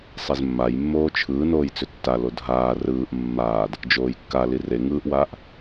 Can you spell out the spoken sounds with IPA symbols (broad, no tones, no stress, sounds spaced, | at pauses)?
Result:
sˤ e z mː a j mː oː t͡ʃʰ ɯː n oː j t͡s ʏ tː a l o dʱ aː r ɯː ʔ mː aː d | d͡ʒ oː j kː a l i r e ŋ ɯː ʔ w aː ʔ